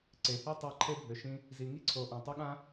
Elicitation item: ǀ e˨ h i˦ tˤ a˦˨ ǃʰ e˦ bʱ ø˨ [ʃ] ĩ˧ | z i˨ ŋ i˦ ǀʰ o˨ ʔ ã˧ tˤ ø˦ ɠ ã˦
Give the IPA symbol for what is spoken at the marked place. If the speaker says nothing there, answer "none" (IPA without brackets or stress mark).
ʃ